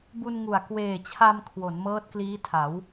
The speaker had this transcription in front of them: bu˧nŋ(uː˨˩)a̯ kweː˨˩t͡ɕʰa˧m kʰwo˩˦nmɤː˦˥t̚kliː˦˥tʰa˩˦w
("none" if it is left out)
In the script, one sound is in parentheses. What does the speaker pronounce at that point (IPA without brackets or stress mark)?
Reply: u˨˩